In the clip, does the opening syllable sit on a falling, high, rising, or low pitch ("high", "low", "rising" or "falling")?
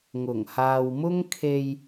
low